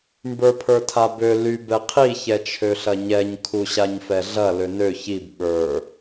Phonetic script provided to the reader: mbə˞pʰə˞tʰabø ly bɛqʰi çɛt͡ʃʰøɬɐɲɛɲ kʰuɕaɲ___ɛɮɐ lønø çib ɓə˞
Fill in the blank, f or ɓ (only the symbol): f